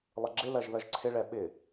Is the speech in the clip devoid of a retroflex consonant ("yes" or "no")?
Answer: no